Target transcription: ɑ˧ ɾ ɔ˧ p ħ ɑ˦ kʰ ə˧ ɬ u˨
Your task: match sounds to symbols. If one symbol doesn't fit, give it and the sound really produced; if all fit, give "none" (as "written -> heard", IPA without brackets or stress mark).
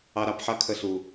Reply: ɔ˧ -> ɑ˧